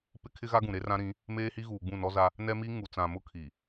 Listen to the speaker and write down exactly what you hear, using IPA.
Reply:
p ɪ˦ kʰ ɪ˦ ɣ a˦ ɡ ũ˨ ɾ e˦ r ã˦ ɾ ĩ˨˦ | m eː˦ h i˦ ɣ uː˨ ɡ͡b ũ˦˨ n ɔ˦ z a˦ | n ɛ˦ m i˦ ŋ u˨ t͡s ã˨ m ʊ˦ kʰ i˨

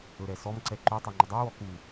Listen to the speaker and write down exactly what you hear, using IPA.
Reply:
ɵ ɾ ɛ s ɔ m ǀ ɛ ǃ u tˤ ɛ ŋ͡ǃ ɵ dˤ u w ɔ k u

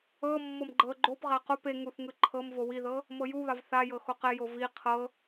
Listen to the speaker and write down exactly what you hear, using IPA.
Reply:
ɤ mː ɤ m ɡ͡ǃ ɤ ɡ͡ǃ o p ʁ a q o p e ŋ u θ ŋ ɯ ǃʰ ɤ m v o w i ð ɤ | m ɤ j u β a v θ a j ɤ x o q ɛ j o v i qʰ ɤ

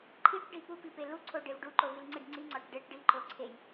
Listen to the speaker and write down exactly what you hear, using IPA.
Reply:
ǃʰ i ʈ ɖ i p u p i p e l u ǀʰ o ɖ e v ɖ u ǃ o v i l ŋ͡ǀ i ɖ ŋ͡ǀ i ŋ͡ǀ ɒ ʈ ɖ e ʈ ɖ i ǃ o ǀʰ e j

